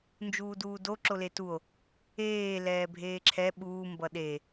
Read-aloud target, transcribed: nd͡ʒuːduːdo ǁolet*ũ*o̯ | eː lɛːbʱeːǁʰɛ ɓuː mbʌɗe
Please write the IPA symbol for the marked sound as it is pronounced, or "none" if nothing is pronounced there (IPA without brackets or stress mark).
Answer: u